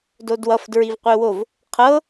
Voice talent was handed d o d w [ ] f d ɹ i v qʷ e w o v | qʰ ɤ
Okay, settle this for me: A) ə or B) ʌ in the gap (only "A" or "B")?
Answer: B